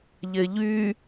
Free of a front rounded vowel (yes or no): no